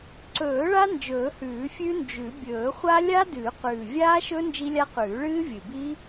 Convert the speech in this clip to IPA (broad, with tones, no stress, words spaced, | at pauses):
ǀɵː˨˩˦ ɭa˦˥nd͡ʒɵː˨˩˦hʉː˨˩˦ fʲʉ˦˥nd͡ʒʉ˨˩˦ bʲɵː˨˩˦χʷa˦˥ lʲa˦˥dʉː˨˩˦qʉː˨˩ vʲaː˦˥ʃɵ˦˥ nd͡ʒi˦˥lʲa˦˥ qʉː˨˩˦ɭɨː˦˥vʲɨ˨˩biː˦˥